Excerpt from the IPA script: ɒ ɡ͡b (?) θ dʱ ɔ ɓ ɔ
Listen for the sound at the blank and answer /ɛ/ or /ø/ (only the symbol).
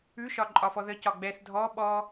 ɛ